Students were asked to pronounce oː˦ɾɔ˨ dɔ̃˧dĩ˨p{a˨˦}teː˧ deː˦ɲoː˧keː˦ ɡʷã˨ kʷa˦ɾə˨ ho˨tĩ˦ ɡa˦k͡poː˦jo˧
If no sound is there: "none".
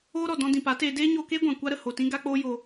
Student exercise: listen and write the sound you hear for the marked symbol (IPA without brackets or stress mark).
a˨˦